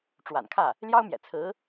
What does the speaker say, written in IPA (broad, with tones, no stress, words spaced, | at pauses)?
ʈ͡ʂwa̰˨˩nkʰä˥˩ | ljɑ˥ʊ̯mjɛ̰˨˩ t͡sʰɹ̩˧˥